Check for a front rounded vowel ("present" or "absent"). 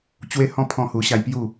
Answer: absent